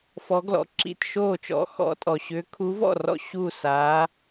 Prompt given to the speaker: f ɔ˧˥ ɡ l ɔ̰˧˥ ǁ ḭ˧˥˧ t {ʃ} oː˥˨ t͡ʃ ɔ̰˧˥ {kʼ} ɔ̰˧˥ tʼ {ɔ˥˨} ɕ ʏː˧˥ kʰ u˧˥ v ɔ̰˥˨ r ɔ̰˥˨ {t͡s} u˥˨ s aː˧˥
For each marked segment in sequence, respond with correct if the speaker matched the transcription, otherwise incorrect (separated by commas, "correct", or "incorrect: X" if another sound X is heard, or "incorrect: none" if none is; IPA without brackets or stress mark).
correct, incorrect: x, incorrect: ɔ˨, incorrect: ɕ